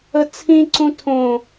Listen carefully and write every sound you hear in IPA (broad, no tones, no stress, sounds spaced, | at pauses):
ə t͡sʰ ĩ ǀ ũ tʰ õ